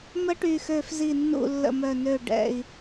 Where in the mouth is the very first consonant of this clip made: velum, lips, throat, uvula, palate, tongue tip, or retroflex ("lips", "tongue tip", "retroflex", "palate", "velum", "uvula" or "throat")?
lips